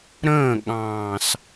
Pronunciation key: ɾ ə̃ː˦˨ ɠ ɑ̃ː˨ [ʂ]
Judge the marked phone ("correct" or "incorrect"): incorrect